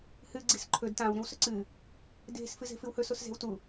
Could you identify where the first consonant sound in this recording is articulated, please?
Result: glottal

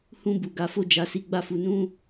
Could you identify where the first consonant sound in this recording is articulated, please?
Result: glottal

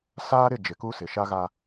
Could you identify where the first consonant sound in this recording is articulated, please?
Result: alveolar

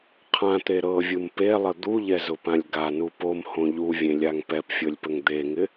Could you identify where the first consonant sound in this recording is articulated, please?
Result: uvular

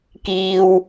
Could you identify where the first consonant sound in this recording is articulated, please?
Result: velar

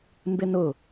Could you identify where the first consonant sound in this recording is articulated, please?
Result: labial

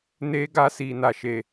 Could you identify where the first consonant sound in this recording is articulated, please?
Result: alveolar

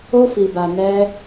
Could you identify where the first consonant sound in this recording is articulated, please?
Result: labial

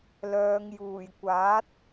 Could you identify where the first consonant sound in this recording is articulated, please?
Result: alveolar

